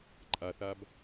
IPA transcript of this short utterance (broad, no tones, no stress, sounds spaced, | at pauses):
ǃʼ a θ a b